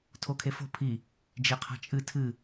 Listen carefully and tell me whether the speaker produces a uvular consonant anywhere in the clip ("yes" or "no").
yes